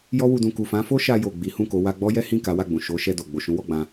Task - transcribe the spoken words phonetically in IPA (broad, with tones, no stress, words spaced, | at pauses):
jɔ˦wu˧ dũ˨ku˨fã˨˦fo˦ ʃa˧jo˨ ɡ͡bi˨˦hũ˦˨ko˨˦ wa˧ɡ͡bɔ˦jɛ˦hĩ˦˨ ka˨˦wa˦˨ɡ͡bũ˨ ʃo˨˦ ʃɛ˧ do˨ ɡ͡bo˨ʃũ˨˦wɔ˦˨ɡ͡bã˧